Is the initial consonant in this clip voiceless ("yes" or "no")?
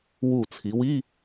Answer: no